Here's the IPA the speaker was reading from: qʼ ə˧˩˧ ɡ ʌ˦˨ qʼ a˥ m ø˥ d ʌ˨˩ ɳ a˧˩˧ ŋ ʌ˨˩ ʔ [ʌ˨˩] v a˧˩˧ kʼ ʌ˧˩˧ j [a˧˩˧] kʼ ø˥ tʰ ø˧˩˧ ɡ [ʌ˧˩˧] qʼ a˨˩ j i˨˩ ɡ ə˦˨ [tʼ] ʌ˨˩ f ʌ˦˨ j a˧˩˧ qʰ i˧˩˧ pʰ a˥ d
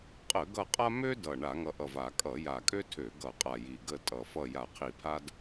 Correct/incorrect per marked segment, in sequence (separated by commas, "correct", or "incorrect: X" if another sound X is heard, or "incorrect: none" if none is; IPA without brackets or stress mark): correct, incorrect: a˨˩, correct, correct